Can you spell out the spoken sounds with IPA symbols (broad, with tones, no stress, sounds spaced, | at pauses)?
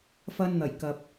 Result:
f ɐ˧ n n̪ ɐ˨˩ j k ɐ˨ p̚